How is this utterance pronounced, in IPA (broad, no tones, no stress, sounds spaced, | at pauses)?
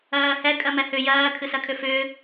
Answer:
ɜː h ɛ kʼ ɜ m ɛ h ʏ j ɜː kʰ ɨ s ɜ kʰ ʏ f ʏː